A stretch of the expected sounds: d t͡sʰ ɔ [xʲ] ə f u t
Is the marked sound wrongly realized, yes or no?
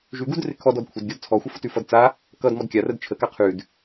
yes